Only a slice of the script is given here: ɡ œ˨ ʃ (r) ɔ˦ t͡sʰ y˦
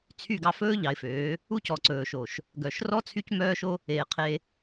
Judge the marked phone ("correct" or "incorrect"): correct